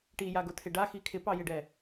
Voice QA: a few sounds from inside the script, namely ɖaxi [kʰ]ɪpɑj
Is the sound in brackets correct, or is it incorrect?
correct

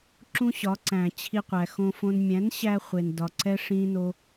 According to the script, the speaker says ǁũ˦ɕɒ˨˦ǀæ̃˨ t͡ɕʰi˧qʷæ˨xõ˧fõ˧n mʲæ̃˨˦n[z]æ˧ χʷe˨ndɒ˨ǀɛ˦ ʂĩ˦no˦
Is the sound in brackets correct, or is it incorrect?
incorrect: ɕ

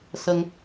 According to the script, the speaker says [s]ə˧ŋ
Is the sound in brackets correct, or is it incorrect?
correct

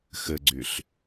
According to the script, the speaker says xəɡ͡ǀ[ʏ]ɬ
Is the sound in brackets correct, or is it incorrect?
correct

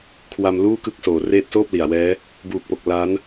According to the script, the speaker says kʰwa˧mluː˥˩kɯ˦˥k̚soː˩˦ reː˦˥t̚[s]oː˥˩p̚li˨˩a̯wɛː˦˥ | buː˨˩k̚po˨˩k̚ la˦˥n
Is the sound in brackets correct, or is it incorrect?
correct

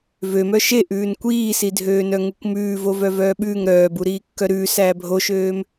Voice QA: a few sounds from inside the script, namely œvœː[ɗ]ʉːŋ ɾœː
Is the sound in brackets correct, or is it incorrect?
incorrect: ɓ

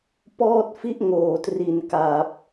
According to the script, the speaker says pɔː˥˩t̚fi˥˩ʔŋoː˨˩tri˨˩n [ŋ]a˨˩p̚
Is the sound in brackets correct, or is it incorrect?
incorrect: k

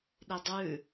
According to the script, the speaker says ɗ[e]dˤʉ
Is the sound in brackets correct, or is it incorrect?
incorrect: i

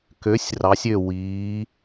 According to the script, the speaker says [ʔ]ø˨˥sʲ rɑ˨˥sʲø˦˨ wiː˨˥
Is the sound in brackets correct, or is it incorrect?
incorrect: k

